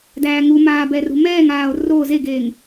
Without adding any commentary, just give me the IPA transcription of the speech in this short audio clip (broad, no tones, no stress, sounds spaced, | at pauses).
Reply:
d æː ŋ u m aː b ɛ r ṳ m ɛː ŋ aː o̯ r o z e ɡ eː ŋ